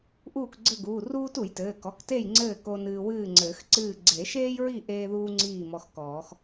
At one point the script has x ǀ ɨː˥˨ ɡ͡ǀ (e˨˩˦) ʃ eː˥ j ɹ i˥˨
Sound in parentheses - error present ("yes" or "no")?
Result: no